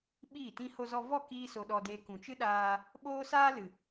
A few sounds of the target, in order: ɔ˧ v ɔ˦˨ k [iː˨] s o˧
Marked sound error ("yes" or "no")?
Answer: yes